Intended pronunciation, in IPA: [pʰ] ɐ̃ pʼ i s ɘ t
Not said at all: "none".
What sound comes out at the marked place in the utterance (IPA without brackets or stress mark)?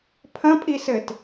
pʰ